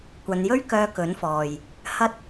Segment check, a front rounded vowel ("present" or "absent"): present